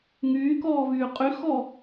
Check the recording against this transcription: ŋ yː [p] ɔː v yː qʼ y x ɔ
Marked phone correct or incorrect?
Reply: incorrect